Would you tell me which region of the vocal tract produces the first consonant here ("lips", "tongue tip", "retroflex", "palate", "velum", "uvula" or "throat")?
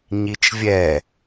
palate